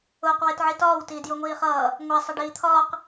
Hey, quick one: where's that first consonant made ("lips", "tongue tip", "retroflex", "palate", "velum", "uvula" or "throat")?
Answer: uvula